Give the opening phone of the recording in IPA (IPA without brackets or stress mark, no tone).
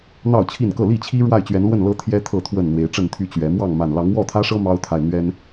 n̪